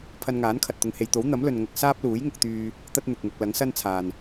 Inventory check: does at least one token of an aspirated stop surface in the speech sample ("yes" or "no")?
yes